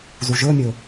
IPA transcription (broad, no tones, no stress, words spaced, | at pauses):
zuʒɵmʲɵ